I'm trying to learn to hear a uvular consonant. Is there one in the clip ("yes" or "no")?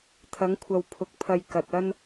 no